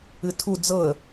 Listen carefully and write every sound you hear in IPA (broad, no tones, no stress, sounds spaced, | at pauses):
ɨ tʰ u d͡z ɤ ə̯